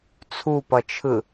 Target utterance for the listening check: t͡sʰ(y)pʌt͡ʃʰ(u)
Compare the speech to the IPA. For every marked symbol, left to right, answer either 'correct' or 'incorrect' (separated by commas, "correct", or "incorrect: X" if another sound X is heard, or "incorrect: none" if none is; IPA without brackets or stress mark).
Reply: incorrect: u, incorrect: ɯ